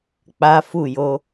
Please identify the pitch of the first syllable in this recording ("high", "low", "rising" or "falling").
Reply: high